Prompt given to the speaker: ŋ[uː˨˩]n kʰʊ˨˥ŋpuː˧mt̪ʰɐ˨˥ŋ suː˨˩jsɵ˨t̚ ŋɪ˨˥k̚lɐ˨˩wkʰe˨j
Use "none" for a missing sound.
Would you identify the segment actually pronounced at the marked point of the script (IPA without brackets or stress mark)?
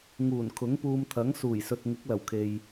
uː˨˩